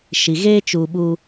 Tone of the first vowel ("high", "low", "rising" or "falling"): low